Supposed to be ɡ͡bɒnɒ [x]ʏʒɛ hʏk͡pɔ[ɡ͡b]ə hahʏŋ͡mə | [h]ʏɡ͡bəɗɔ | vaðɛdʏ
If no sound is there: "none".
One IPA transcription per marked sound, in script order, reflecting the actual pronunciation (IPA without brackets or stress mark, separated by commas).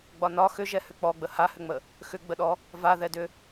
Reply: x, ɡ͡b, x